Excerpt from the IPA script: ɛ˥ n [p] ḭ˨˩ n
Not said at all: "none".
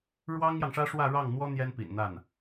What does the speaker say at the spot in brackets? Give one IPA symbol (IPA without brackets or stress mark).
p